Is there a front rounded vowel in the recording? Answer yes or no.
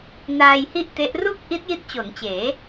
no